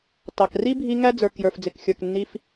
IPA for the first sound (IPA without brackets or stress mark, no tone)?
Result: t